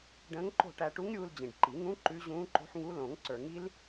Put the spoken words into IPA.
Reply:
ɖ ə̃ː˧˥ ŋ ǃ o̤˥˨ ʈ æ˧ ʈ u˧˥ ŋ ɾʲ uː˧ l d͡ʑ ĩ˨˩ ɖ ǃ i˨˩˦ ŋ ũ˧˥ ǃ ʉ˧˥ ʑ ũː˧˥ ǃ o̤˧˥ ħ ŋ u˧˥ l õ˨˩˦ ŋ ǀ ə˞˨˩˦ ŋ i˧˥ l

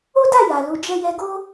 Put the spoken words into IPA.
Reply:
o˦ d a˦˨ j a˨ l u˨˦ d͡ʒ ɛ˦ j ɛ˧ ɡ o˦

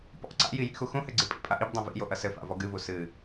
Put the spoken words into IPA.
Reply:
p ɔ̰ ǀ a̰ j i j ḭ x u x ũ h ɘ ɡ͡ǀ ɨ pʼ ḭ pʼ a ʔ i b dˤ õ v ḭ j o ʔ ɐ s ɘ f a̰ v ɔ ɡ ɨ v u s ɨ

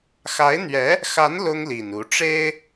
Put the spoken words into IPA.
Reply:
x a˧˥ ɪ̯ n̪ ɥ ɛ˧˥ | x a˧˥ n l ʊ˥ ŋ l i˨˩ n u˧˥ ʈ͡ʂ e˥ ɪ̯

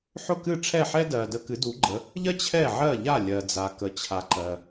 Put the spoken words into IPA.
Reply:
ħ ʊ˥˩ k ɨ˥˩ ʈ͡ʂʰ ɛ˥˩ ħ ɛ˥ d ɜ˩ d ə˧ k ɨ˩˥ d u˩˥ ɡ͡ǃ ə˩˥ | ʎ ɜ˥ t͡ɕʰ ɛ˥˩ ʕ ɜ˥˩ ʎ a˥˩ lʲ ɜ˩ d͡z a˩ k ə˩ t͡ɕʰ a˩ ǃ ɜ˩

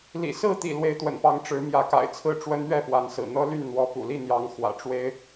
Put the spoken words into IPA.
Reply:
l ḭ˨˩ s ɹ̩˥˨ t̪ ḭ˨˩ l w e˨˦ ɪ̯ t̪ w ə̰˨˩ n p ɑ˨˦ ŋ ʈ͡ʂ ɻ̩˨˦ m j ä˨˦ k a̰˨˩ ɪ̯ t͡sʰ ɹ̩˥˨ ʈ͡ʂ w ə˦ n ɥ ɛ˥˨ p w a˨˦ n s ɹ̩˨˩ n̪ ɤ˦ l y˥˨ n n̪ w ɔ˨˦ p ṵ˨˩ l i˥˨ n̪ j ɑ˨˦ ŋ x w ä̰˨˩ ʈ͡ʂ w e˦ ɪ̯

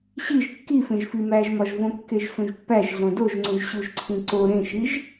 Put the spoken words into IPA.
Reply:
ɕ i ʒ kː i f ẽ ʒ f i m æ ʒ m ɒ ʒ v õ kː e ʒ s ũ ʒ pː æ ʒ ɮ õ d o ʒ ŋ͡ǀ ũ ʒ ɕ u ʒ ǀʰ ĩ ǀ o ɾ ẽ ʃ i ʒ

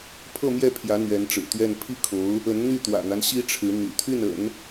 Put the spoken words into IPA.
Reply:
pʰ ɤ˥˧ m j ɛ˥˩ pʰ j ä˧˥ n̪ ɥ ɛ˧˥ n ʈ͡ʂ ɻ̩˨˩ t̪ ɥ ɛ˥˧ n pʰ i˥˩ kʰ o˧˥ ʊ̯ | ə˧˥ n n̪ y˥˩ t̪ w ä̰˨˩ n̪ a˦ n ɕ i˥ ʈ͡ʂʰ ɻ̩˧˥ n̪ y̰˨˩ t̪ʰ y˥˩ n ə̰˨˩˦ n

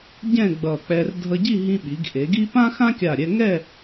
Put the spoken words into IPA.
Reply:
ɟ ɛ̃˥˧ ɡ͡b ʌ˧˩ k͡p ɛ˧ r dʱ ʌ˧ ɟ i˥˧ ɦ ĩ˧ ɓ i˩˧ ɡ ʔ e˩˧ ɡ i˥ p ã˥ x ã˥ kʲ a˧˩ ɾʲ ɛ˧ ŋ ɛ˥˧

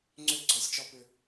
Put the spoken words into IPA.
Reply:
ŋ͡ǀ ʏ˦˨ ɡ͡ǀ ɔ˦ sʲ t͡ʃ ɔ˦ p ʏ˦

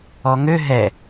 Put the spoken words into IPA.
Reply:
ɔ ŋ ø ɦ ɛ

